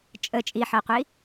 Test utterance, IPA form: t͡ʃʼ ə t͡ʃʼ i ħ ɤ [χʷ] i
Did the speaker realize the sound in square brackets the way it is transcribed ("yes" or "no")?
no